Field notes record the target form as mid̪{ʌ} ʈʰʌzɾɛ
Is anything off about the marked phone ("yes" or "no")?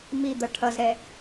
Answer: no